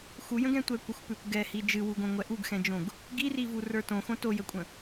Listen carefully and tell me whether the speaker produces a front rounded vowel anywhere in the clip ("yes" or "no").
no